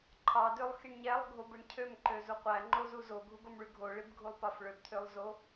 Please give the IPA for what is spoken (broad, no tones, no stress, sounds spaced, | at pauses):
ǃʰ ɑ d ø lˠ x i ɳ ɲ æ lˠ ɡʱ o b ɯ ɳ cʰ ø m ǃ ø z u qʷ æ ŋ͡ǃ o z u z o ɡʱ u ɡ o m ɭ y ɡʱ o ɭ i b ɡʱ u lˠ p ɑ f ɭ ø b t̪ʰ ø lˠ z o